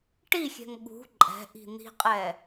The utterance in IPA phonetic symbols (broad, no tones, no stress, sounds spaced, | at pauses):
ʈ i xʲ ɛ̤ ŋ ɠ ṳ ǃʼ ɛ̤ ʔ i̤ n̪ i̤ qʼ ɛ